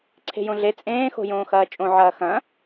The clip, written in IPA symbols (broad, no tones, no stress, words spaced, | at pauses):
ǀʰe̤jõɮe t͡sʼẽː xo̤jõːxɐːt͡ʃʼõ ʕɐːxɐ̃